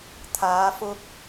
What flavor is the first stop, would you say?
aspirated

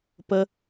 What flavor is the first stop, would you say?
plain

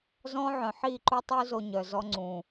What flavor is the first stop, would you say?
click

